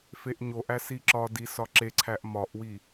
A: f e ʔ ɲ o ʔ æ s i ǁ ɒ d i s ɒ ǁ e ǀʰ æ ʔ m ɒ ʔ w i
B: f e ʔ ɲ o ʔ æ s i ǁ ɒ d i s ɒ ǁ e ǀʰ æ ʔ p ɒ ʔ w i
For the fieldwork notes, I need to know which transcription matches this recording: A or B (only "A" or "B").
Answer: A